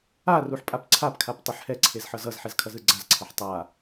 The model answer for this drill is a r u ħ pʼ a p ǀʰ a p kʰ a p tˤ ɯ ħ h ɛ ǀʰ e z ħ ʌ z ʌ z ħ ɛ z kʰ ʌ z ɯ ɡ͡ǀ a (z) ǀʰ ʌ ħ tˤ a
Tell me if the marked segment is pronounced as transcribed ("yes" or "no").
yes